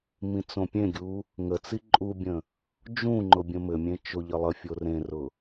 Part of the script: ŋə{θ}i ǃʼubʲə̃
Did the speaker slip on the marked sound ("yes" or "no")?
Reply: yes